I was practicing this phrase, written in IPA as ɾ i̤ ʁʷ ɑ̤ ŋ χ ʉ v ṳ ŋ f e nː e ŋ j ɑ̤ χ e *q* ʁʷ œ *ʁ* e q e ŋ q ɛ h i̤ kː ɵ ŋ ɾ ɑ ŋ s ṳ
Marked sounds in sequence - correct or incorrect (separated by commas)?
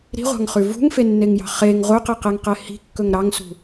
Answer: incorrect, incorrect